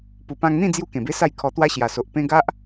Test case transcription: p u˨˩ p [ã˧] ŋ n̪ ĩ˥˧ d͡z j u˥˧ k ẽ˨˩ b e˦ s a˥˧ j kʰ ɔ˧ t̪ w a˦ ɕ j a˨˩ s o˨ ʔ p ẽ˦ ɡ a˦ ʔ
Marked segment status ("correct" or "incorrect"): correct